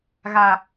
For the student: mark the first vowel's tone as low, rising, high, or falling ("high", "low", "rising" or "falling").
low